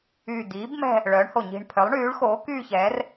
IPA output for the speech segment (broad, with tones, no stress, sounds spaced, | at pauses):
yː˨˩ d̪ iː˩˥ b m ɛ̤˥˧ | ɭ œː˩˥ ɳ h o˨˩ ɲ i̤˨˩ ɳ pʰ œ˩˥ lˠ ɳ yː˩˥ ɭ x oː˩˥ k yː˥˧ ç ɛː˩˥ r